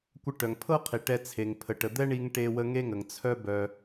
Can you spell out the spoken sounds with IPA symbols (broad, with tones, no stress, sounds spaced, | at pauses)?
kʷ ə˧ ʈ œ˨ ŋ pʰ ɤ˦ qʰ i˨ ʈ ɛ˧ t͡sʰ e˨ ŋ pʰ ə˨ ʈ ə˨ d̪ ɛ˦ ɳ i˧ ŋ ʈ e˧ w ə˧ ŋ e˦ ŋ ə˨ ŋ t͡sʰ œ˦ b œ˧